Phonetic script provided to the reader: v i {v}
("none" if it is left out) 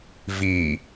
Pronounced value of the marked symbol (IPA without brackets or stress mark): none